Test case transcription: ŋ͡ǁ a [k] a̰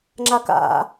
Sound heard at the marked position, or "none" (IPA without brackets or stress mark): k